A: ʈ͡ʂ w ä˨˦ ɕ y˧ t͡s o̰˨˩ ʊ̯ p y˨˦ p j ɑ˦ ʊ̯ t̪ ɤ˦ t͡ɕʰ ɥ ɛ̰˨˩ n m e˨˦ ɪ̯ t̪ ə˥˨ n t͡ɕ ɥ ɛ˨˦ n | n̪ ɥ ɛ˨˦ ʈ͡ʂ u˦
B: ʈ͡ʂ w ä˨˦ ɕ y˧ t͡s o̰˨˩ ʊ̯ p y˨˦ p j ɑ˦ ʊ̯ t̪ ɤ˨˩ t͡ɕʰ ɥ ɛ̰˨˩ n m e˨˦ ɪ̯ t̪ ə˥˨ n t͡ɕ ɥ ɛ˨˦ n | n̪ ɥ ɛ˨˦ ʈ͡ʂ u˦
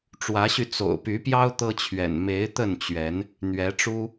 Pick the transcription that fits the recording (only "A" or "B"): A